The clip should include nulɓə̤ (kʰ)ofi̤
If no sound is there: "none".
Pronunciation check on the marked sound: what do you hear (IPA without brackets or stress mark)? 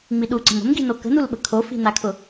kʰ